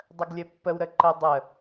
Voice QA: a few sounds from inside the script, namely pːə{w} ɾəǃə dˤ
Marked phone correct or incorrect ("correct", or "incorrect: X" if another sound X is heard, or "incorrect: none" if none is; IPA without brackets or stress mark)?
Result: correct